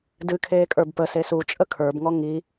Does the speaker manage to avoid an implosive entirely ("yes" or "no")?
yes